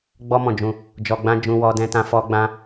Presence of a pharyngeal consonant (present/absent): absent